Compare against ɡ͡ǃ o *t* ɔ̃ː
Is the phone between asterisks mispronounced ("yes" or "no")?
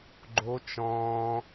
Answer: yes